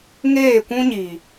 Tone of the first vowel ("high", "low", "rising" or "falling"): falling